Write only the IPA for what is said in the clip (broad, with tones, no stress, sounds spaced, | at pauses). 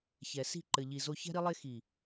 ç ɛ˨ s i̤˦˨ ǃ ɘ˨ ʎ i˨ z o˦ ç ɛ̤˦ ɾ i˦ lˠ e˦ x i˨